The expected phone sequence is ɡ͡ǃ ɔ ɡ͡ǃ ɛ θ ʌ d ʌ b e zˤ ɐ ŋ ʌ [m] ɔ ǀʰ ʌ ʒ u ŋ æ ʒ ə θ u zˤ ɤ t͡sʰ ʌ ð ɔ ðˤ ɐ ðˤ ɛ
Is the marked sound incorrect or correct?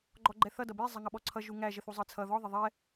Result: incorrect